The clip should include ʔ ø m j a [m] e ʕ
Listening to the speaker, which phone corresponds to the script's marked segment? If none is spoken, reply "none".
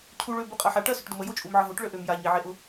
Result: ɲ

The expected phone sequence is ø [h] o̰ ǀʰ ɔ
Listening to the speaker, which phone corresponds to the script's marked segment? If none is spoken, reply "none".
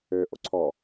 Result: ʔ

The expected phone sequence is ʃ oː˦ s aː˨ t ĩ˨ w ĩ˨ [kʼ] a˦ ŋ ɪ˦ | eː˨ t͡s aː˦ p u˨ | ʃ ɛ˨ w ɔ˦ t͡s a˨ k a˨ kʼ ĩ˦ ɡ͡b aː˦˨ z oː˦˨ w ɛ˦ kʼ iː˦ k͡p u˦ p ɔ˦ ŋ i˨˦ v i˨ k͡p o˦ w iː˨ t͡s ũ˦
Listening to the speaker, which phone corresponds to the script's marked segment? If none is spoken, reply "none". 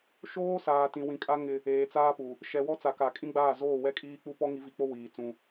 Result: kʼ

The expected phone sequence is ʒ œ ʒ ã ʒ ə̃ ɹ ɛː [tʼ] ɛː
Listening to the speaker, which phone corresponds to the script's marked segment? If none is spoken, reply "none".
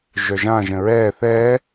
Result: θ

